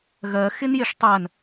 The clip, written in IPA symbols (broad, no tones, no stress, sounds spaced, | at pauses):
ɣ ɜ x ɪ n j ɪ ʂ tˤ ɜ n